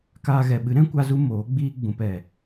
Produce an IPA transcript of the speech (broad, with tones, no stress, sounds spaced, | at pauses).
k aː˧ ɣ ɛ˨ ɓ ɨ˨˦ ɾ ɛ̃˦ kʷ a˦ z u˦ m oː˨˦ ɡ͡b iː˦ ɡ͡b ũ˨ p ɛ˨